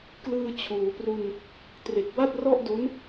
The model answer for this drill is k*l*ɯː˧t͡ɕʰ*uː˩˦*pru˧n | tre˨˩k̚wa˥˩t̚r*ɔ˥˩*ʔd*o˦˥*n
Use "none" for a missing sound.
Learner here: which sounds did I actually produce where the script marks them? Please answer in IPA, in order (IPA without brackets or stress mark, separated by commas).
l, uː˩˦, ɔ˥˩, o˦˥